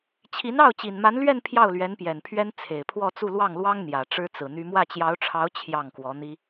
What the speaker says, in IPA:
t͡ɕʰi˧˥nɑ˥˩ʊ̯ t͡ɕi˨˩nma˧˥nlɥɛ˥˧n pʰjɑ˥˩ʊ̯lɥɛ˧˥n pjɛ˨˩npʰɥɛ˥n t͡sʰe˨˩ɪ̯pʰwɔ˥˧t͡su˥˧ lwɑ˥˩ŋlwɑ˥ŋ n̪jä˨˩ʈ͡ʂɻ̩˥t͡sɹ̩˨˩n̪y˥ mwä˥˩t͡ɕjɑ˧˥ʊ̯ʈ͡ʂʰɑ˧˥ʊ̯ t͡ɕʰjɑ˥˩ŋkwɔ˧˥n̪i˥

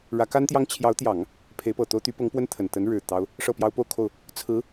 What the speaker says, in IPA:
ɻä˧˥ka˥nt̪jɑ˥ŋ t͡ɕʰjɑ˧˥ʊ̯t̪jɑ˨˩˦ŋ | pʰe˧˥ɪ̯pɤ˨˩t̪o˥ʊ̯ t̪y˧˥pɤ˧˥ŋpwə˥n t̪ʰə˨˩n t̪ə˧˥n ɻɻ̩˨˩t̪ɑ˥ʊ̯ | ʂɤ˥˩pjɑ˥ʊ̯ po˥˧ʊ̯kʰo˥˩ʊ̯ | t͡sʰɹ̩˧˥

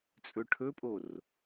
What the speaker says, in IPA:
t͡sʼɵʈʰɵpʼor

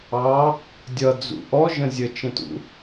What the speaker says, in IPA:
ɑ | dʲʌd͡zṵ ʔɔʒə̃ zʲət͡ʃə̃tṵ

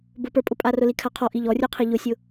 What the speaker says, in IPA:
bʊpə˞pʼʊpʼa rʊlikʰaqʰɔ ʔiʎɔrʲə˞qʰi ʎʊsʲʊ

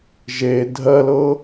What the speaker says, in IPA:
ʒe dʱɜlɤ

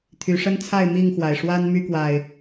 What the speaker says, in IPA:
t̪ʰy˨˦ʂə˦nt͡sʰa˥˨ɪ̯ mi˥˨ŋxwa˩ɪ̯ ʂwa˦n my˦kwa˨˩ɪ̯

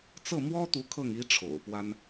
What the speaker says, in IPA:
t͡sɤ˥˩mwɔ˥t̪u˧˥ kʰɤ˥˩ŋ i˥ʈ͡ʂʰo̰˨˩ʊ̯pwa˥n

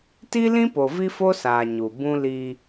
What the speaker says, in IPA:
ti˦lĩ˦po˨ vi˦fo˦saː˨ ɲu˨ bũ˦li˦

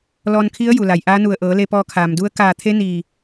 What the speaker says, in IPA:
lɔː˧nkʰi˧˥ə̯ ju˩la˩jʔaː˧˥nu˧˩ə̯ ʔɤː˩˧le˧pɔː˧ kʰaː˩mdu˧˥ə̯ kaː˧˩t̪ʰe˧˥ niː˧˩

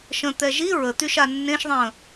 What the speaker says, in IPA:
ʃə̃ t̪ɛʒi ɹət̪yʃa nːẽʃðˤə̃ː

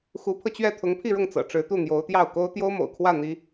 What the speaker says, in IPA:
xu˧˥pʰɤ˧t͡ɕɥɛ˥˩ t̪ʰʊ˧˥ŋpʰi˥˧ɻʊ˥˩ŋ t͡sɤ̰˨˩ʈ͡ʂɻ̩˧˥t̪u˥˩ n̪jo˧˥ʊ̯t̪jɑ˥˩ʊ̯ ko˥ʊ̯ t̪jo˥ʊ̯mo̰˨˩ʊ̯kʰwä˥˩ n̪i˥

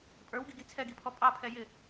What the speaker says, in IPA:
pʼə˞wɡiɡi t͡sʰɛɡipʰɔ pʼɑpʰɛ jɪ

